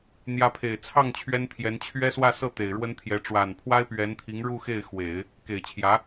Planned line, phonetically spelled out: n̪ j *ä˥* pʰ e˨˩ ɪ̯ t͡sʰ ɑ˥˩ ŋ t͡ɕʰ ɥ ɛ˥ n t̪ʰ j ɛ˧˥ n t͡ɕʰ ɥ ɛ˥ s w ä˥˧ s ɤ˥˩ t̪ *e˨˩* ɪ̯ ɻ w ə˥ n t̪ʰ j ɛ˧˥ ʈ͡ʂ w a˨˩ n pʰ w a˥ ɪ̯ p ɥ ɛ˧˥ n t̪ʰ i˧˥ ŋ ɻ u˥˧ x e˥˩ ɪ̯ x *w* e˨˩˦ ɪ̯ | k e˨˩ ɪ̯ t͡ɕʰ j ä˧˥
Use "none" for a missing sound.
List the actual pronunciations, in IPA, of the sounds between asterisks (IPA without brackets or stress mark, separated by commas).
ä˧˥, e˨˩, w